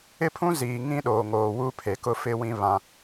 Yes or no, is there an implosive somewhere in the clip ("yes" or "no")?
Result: yes